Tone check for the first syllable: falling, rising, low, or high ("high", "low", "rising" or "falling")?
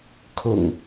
low